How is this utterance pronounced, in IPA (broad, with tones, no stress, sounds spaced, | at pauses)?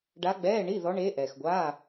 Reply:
ɖ a˧˥ ɡ͡b ɛː˧˥˧ ɳ i˧˥˧ ð ɔ˧˥ ɳ eː˧˥ ʔ ɛː˨ x ɡʷ aː˧˥˧